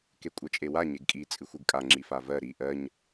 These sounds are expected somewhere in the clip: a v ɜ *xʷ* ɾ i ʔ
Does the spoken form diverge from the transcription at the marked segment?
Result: yes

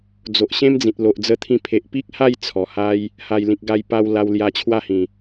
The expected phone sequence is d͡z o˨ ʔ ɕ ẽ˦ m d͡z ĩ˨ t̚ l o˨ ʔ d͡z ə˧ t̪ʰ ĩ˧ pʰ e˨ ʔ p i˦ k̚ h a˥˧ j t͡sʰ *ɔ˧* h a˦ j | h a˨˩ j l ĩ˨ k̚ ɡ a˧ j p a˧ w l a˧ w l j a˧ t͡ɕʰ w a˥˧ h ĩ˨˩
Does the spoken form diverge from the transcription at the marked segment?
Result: yes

